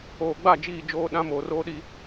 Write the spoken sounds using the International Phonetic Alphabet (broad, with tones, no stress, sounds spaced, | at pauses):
oː˨ ɡ͡b a˦˨ d͡ʒ iː˦˨ d͡ʒ oː˦ ɗ ã˦ m oː˨ r oː˦ ɗ i˦